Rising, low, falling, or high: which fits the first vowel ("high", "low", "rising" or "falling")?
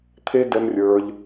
high